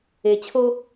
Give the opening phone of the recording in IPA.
e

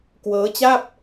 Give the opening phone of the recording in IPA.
k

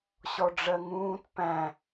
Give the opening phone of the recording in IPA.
ɕ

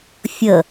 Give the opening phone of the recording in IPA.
fʲ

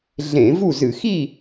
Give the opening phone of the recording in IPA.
ɮ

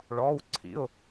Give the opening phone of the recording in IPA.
ɭ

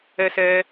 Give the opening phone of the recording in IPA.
ɛ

